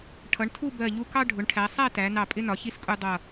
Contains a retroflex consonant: yes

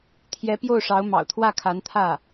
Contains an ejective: no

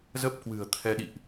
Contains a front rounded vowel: no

